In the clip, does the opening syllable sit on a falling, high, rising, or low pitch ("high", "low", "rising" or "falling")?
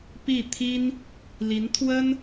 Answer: falling